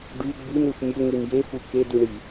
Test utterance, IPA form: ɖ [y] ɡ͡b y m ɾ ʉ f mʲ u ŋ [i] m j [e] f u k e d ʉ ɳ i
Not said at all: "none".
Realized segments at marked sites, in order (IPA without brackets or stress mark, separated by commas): y, i, e